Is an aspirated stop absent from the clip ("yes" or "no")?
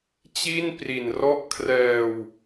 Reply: no